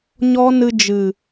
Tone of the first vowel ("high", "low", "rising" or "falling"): high